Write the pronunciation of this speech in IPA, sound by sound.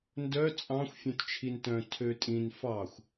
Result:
n d œ t͡sʼ ɑ̃ xʷ fʲ œ̃ t t͡ʃʰ i n t œ̃ tʰ ø tʼ ĩ n f ɑ xʷ

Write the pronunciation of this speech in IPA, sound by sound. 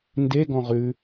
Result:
n d e ɡ ɔ̃ ʁ ʉ

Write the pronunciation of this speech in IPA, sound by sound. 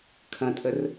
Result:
kʰ ɐ̃ tʼ ə r

